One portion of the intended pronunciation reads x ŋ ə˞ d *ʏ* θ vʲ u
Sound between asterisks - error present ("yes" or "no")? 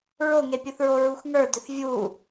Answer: no